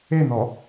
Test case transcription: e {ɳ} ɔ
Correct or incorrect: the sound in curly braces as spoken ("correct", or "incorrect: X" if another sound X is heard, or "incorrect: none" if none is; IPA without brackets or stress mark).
incorrect: n̪